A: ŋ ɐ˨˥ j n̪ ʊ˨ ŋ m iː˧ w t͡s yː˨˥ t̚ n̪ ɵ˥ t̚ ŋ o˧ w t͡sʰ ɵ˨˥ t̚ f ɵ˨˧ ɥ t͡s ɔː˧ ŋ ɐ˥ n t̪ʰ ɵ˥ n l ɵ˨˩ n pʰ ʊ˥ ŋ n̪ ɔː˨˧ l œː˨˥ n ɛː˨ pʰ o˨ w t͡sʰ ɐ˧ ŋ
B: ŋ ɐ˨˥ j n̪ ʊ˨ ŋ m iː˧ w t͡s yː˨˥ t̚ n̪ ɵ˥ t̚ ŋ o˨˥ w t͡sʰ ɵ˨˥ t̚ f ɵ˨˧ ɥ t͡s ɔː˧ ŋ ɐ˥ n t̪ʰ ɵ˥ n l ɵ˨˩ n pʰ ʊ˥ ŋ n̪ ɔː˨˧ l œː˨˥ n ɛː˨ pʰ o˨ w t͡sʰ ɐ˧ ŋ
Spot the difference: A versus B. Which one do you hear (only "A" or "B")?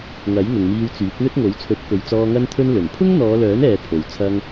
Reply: B